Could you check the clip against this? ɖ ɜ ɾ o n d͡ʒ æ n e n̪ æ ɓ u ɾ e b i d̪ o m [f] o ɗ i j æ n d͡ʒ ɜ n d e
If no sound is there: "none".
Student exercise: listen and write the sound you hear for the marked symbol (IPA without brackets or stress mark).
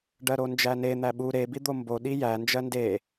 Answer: b